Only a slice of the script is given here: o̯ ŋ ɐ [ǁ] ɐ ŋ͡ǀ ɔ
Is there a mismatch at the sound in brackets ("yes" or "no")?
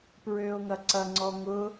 yes